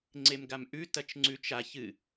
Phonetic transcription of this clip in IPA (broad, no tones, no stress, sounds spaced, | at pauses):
ŋ͡ǀ e m ɡ a m ʔ ʉ t ɐ t͡ʃ ŋ͡ǀ ʉ t͡ʃ a ç ɨ